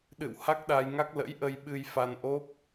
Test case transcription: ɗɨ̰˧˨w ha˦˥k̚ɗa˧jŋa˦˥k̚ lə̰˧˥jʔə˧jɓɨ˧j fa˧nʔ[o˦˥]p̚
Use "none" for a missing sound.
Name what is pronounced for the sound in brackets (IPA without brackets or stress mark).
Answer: o˦˥